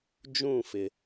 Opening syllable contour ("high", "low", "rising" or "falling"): falling